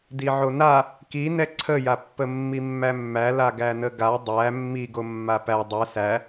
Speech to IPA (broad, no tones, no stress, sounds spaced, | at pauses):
d i ʕ o n a | k i n ɛ ǀʰ ə j a pː ə mː i mː æ mː æ l a ɡ æ n ə ɡ a dˤ æ mː i ɡ o mː a p æ dˤ ɛ s æ